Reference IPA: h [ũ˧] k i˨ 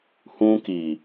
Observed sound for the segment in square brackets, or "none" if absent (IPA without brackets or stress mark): ũ˧